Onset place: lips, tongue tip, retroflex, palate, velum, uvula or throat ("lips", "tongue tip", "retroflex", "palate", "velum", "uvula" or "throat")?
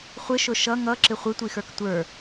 uvula